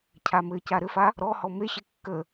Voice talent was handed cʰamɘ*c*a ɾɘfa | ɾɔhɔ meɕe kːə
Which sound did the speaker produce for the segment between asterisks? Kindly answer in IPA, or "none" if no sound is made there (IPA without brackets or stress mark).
c